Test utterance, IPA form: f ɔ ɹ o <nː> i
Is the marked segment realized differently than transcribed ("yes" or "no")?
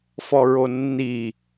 no